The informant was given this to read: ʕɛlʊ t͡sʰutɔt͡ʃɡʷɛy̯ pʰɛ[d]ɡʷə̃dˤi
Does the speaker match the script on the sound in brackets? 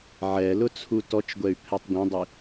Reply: no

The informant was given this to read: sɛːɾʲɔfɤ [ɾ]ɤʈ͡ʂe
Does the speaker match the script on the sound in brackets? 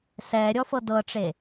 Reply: no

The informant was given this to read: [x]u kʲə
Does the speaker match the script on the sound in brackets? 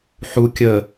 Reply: no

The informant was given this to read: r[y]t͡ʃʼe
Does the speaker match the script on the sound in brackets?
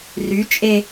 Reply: yes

